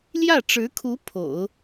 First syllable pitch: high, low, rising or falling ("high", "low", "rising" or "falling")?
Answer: falling